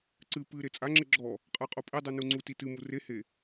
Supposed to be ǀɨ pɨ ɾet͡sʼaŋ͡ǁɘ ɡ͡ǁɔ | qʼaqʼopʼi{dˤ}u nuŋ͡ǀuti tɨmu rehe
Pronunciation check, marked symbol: correct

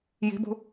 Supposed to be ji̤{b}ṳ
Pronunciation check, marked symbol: correct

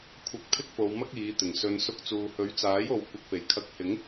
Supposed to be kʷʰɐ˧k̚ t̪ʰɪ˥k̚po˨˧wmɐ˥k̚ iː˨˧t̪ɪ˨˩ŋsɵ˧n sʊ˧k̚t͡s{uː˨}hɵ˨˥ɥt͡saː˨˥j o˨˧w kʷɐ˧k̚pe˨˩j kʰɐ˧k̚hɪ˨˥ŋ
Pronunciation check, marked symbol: correct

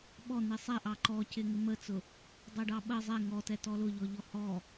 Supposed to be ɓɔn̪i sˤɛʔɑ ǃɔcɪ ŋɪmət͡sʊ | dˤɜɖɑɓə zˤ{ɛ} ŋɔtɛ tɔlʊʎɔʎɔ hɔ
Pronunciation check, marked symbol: correct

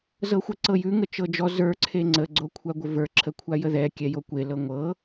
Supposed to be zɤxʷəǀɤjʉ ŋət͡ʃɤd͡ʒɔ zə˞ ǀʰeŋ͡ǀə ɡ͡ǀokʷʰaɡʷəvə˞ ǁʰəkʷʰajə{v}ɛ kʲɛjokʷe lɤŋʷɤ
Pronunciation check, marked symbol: incorrect: ð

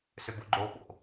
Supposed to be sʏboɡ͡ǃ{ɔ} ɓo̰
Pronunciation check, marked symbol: incorrect: o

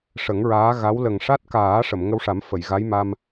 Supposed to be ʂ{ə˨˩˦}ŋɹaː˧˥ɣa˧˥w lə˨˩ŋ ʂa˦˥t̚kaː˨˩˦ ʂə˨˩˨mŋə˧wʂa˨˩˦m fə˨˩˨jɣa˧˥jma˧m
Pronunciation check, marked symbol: correct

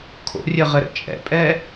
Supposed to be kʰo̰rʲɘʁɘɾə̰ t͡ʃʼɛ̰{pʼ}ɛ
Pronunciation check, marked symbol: correct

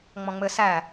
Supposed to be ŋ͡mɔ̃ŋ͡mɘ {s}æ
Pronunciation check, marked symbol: correct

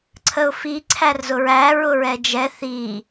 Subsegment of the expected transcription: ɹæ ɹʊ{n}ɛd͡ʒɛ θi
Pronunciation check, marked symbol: incorrect: ɹ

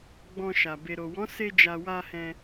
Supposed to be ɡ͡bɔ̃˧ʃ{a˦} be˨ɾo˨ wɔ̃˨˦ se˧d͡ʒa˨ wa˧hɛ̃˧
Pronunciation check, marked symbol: incorrect: a˨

